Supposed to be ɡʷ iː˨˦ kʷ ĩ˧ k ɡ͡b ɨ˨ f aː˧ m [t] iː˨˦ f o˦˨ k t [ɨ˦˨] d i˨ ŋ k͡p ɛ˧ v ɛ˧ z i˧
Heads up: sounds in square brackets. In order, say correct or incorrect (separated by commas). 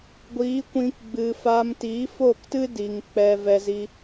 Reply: correct, incorrect